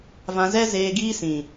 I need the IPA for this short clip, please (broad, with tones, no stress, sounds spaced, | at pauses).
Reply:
v ã˧ z ɛ˦ z eː˧ ɡ iː˧ s ĩ˨